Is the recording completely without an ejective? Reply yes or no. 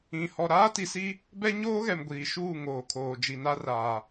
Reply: yes